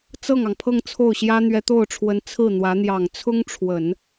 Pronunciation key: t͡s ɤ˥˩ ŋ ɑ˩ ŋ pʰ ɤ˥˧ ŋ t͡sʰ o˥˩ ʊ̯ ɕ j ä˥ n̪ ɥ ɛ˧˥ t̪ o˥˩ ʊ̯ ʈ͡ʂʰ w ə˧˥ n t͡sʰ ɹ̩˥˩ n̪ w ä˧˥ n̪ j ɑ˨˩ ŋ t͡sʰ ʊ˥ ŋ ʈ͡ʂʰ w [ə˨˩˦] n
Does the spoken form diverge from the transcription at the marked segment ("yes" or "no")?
no